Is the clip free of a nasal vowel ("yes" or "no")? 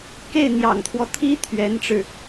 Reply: yes